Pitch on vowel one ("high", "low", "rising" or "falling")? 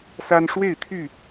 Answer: high